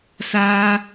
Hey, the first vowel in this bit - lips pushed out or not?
no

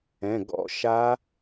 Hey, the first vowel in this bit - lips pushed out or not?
no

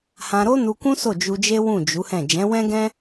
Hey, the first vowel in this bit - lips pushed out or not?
no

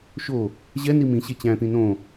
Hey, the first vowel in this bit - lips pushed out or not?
yes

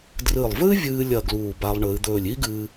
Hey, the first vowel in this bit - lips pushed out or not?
no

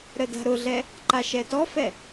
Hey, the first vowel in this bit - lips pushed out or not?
no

